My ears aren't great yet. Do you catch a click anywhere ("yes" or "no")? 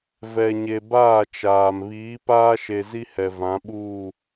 no